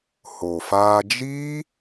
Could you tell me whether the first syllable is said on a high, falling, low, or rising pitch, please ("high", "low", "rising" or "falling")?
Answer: low